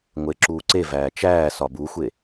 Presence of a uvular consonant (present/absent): absent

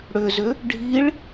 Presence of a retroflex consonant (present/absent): present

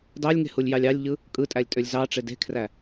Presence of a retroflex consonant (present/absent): present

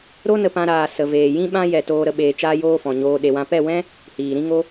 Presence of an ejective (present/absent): absent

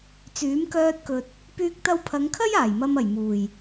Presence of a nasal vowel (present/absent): absent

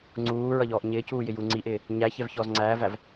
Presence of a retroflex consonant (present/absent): absent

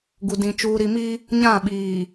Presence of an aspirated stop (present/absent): absent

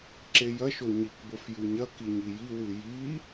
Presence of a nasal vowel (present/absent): absent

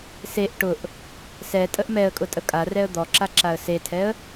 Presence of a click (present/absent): present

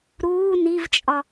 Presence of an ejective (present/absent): present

